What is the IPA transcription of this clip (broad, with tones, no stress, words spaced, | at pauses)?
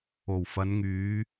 o˨˩wfɐ˨˧nŋyː˨˧